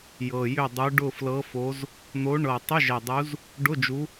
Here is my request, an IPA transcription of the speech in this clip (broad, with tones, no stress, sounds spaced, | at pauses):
j ɤ˨˩ j ʏ˦˨ dˤ u˨˦ ɖ ʊ˦˨ f l ɤ˨˦ f o˨˦ z | n̪ o˨˦ ɳ ɤ˨˩ tˤ ʏ˧˥˧ ʒ ɛ˨˩ dˤ u˨˦ z | ɖ ʊ˧˥˧ d͡ʒ u˨˦